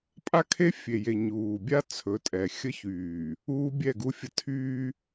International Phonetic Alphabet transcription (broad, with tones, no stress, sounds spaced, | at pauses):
pʼ a˦ kʰ e˦ fʲ e˨ j e˨ ɲ uː˨ bʲ a˦ t͡sʰ ɵ˨˦ tʼ ɛ˨ xʲ ə˦ ç yː˨ | uː˦ bʲ ɛ˦˨ ɡ u˦ fʲ ə˦ tʰ yː˦